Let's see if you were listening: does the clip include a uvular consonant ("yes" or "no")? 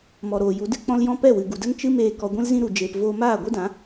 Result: no